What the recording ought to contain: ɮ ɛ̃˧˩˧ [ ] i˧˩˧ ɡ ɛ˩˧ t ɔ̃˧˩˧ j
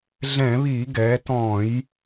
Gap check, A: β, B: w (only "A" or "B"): A